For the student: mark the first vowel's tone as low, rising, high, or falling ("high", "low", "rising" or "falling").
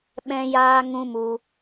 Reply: high